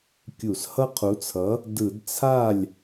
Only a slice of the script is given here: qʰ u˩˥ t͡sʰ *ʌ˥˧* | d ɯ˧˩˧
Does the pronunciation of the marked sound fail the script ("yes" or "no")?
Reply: yes